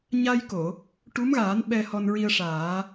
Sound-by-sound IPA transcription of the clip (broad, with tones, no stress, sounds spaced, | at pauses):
ɲ a˧ j k o˨˩˨ | ʈ u˧˥ m ɣ aː˨˩˦ n ɓ ɛ˧ h ɔ˧ n ɹ i˧ ə̯ ʂ aː˨˩˦